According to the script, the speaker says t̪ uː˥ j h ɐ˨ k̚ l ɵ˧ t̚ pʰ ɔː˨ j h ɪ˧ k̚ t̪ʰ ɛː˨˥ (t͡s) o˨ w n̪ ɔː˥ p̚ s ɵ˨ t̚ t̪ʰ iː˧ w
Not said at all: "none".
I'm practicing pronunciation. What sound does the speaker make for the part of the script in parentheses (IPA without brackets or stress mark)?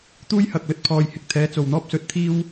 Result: t͡s